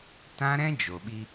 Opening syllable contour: high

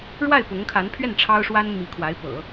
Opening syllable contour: falling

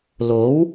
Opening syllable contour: rising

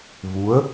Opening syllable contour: rising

